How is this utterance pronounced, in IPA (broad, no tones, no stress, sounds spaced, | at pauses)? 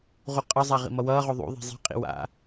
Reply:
ʁ u qʼ ʌ zˤ a ʁ ḭ m ʌ w ʌː ʁ o ðˤ ṵ ðˤ i̤ zˤ i̤ qʼ ḭ w a̰